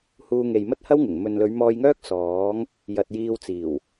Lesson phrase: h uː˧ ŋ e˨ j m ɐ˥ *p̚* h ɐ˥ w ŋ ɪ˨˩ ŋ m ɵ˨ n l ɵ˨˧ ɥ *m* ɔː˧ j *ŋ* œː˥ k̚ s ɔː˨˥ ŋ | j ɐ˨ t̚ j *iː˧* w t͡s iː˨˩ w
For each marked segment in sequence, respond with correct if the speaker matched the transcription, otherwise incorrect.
incorrect: t̚, correct, correct, correct

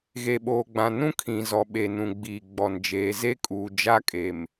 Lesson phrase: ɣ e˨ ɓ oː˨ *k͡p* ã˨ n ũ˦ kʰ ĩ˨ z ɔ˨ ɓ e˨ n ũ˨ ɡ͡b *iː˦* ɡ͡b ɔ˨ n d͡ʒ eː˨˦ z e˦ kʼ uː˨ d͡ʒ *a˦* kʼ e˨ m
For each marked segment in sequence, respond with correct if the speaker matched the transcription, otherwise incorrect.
incorrect: ɡ͡b, incorrect: iː˨, correct

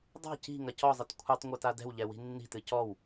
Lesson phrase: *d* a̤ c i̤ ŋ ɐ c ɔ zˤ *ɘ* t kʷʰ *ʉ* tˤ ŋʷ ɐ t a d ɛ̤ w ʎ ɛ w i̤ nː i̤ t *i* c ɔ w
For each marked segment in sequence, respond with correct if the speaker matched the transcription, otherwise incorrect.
incorrect: dˤ, correct, incorrect: ɨ, incorrect: ɨ

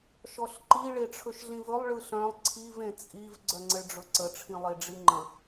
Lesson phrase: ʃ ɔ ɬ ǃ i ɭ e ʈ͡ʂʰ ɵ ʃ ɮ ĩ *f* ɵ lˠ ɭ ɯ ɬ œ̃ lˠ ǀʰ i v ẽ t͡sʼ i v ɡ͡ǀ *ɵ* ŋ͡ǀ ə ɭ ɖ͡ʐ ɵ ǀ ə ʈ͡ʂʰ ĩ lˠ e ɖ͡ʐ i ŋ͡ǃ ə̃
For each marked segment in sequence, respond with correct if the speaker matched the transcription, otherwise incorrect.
incorrect: v, incorrect: œ

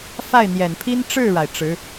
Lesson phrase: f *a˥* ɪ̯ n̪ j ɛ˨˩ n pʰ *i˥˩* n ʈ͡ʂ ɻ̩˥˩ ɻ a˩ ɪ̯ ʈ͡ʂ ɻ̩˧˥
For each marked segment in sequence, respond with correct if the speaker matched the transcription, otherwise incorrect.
incorrect: a˥˩, incorrect: i˥

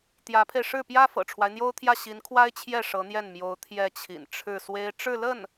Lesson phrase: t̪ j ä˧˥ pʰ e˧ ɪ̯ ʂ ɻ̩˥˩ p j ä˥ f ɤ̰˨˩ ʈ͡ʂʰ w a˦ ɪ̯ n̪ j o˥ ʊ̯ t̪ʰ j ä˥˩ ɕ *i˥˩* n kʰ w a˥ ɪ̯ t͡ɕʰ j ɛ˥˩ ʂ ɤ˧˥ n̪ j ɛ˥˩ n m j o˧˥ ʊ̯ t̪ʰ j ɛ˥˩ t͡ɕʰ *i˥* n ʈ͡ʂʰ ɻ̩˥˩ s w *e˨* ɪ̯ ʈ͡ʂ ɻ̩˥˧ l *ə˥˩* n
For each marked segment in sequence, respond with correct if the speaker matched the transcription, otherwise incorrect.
incorrect: i˧˥, incorrect: ḭ˨˩, incorrect: e˥, correct

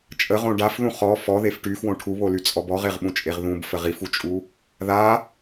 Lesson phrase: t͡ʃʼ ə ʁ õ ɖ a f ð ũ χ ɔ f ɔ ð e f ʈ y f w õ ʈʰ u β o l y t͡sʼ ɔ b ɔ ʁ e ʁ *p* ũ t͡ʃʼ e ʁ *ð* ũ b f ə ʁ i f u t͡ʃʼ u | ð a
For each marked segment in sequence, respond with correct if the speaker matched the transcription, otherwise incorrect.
incorrect: ɓ, correct

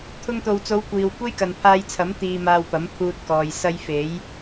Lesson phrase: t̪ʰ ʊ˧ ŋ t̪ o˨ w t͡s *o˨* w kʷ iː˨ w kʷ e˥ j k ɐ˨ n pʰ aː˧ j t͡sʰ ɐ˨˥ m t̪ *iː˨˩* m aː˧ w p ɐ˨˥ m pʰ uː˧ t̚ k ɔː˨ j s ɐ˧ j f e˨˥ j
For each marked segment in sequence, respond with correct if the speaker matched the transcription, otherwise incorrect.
incorrect: o˨˧, incorrect: iː˧

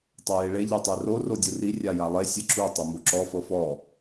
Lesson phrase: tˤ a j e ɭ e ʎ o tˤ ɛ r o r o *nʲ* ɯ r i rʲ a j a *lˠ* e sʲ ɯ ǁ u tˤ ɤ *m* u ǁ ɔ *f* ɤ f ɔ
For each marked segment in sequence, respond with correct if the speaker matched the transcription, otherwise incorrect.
incorrect: dʲ, correct, correct, correct

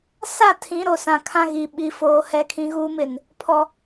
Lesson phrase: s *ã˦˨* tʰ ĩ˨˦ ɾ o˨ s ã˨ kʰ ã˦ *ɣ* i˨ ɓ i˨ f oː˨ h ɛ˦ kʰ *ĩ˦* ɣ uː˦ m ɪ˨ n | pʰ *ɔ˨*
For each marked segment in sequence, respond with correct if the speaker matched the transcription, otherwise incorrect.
incorrect: a˦˨, correct, correct, correct

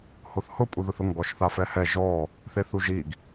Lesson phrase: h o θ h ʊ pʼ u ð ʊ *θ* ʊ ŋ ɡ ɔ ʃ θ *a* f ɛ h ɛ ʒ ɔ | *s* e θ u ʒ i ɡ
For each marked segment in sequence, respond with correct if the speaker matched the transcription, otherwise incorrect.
correct, correct, incorrect: θ

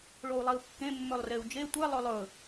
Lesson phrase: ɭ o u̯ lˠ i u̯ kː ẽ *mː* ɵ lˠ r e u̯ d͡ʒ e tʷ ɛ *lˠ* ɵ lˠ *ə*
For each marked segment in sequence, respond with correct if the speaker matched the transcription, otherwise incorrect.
correct, correct, incorrect: ɵ

